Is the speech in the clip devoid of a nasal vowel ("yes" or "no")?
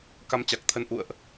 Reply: yes